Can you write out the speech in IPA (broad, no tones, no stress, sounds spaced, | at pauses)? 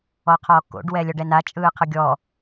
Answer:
ɔ qʰ ɔː k o̰ ɖ w ɛ lʲ ɔ ɖ ɛ n a t͡ʃʼ ɯː qʰ ɯ ɡʲ ɔ